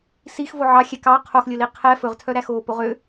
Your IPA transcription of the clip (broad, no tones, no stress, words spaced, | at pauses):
six voʕɑxʲɛ kɑ qʰoxlʲɵli qʰɛ fɵʁtʰœɾæ xoːpoʁø